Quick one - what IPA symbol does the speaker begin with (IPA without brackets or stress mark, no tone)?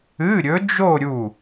ɨ